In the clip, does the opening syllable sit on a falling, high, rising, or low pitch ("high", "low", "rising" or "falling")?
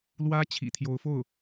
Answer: high